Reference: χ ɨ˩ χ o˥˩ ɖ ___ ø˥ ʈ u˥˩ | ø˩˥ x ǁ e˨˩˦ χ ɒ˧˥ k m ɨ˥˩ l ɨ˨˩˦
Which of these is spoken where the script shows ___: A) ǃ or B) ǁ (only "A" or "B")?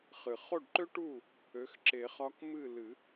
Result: A